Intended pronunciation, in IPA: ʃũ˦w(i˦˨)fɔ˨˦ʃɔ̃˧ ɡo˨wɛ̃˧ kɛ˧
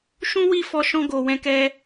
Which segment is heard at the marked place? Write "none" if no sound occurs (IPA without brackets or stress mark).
i˦˨